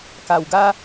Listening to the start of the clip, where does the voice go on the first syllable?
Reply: low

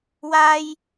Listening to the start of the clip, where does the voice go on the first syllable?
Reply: high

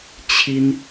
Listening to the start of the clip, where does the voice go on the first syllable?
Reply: high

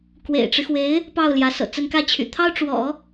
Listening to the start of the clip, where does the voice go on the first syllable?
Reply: low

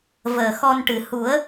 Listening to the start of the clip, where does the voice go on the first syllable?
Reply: low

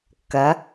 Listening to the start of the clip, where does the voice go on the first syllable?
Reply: rising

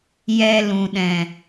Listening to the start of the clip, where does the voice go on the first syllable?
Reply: low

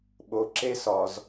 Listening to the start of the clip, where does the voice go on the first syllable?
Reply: low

